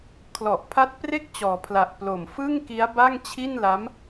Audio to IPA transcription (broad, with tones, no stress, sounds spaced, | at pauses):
kʰ l ɔ˨˩ ʔ pʰ a˦˥ t̚ p r e˥˩ k̚ t͡ɕ ɔː˩˦ pʰ l a˨˩ ʔ p l o˨˩ m f ɯ˥˩ ŋ k i˦˥ a̯ b a˥˩ ŋ t͡ɕʰ i˥˩ n l a˦˥ m